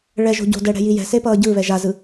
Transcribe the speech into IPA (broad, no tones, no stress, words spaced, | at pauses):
ɭɛʒo̤ ɟo̤dɛɽɛ̤ji jɛ̤sepʌː ɟɯβɛ ʒazɯ